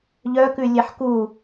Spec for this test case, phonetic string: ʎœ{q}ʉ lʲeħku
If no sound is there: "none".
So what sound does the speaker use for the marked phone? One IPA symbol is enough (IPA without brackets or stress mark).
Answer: k